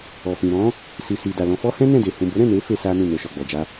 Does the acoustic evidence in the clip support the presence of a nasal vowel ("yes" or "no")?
yes